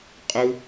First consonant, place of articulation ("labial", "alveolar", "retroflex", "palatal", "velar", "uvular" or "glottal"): uvular